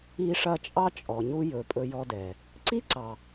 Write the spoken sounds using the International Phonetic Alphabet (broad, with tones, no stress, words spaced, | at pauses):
i˧ʂɐ˧t͡ʃʼɑ˦ t͡ʃʼɔ˨ɲu˧jɵ˨ pʼɵ˧jɔ˧dɛ˨ | ǀi˦ǀɑ˨